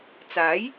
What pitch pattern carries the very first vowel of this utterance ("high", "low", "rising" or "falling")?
rising